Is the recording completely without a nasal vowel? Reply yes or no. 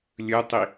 yes